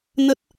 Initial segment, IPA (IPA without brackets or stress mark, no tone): n